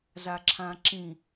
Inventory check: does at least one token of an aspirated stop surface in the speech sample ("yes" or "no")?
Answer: yes